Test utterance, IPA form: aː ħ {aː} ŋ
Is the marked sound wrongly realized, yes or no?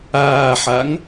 yes